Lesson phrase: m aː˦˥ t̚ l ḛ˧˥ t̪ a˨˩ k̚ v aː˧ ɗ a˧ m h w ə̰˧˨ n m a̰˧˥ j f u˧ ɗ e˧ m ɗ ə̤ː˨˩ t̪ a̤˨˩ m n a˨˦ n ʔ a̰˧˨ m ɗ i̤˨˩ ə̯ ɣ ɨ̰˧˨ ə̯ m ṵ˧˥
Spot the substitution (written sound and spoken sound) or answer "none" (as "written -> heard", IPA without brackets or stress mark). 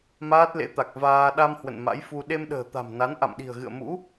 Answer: none